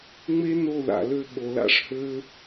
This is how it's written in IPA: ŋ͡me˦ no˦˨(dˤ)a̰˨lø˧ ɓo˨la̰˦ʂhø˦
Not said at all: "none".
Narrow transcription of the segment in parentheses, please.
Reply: ð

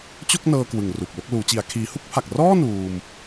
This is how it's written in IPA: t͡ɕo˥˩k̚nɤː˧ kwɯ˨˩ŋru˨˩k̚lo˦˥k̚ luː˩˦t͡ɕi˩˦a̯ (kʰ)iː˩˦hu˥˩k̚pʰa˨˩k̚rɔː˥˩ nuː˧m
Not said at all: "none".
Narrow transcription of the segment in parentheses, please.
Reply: kʰ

